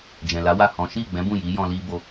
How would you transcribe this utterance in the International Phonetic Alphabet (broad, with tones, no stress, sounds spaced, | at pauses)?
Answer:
d͡ʒ ɛ̃˨ l a˨˦ w a˦˨ h ɔ̃˨˦ ʃ i˦˨ ɡ͡b ɛ̃˨˦ b ũ˦˨ j i˨˦ j ɔ̃˧ l i˧ b o˧